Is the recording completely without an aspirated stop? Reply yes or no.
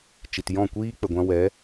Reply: yes